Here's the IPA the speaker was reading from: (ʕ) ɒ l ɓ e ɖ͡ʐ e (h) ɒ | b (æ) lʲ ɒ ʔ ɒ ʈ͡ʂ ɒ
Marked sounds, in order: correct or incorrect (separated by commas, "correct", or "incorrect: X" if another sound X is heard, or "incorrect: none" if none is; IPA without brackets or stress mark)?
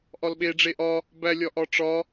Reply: incorrect: ʔ, incorrect: ʔ, correct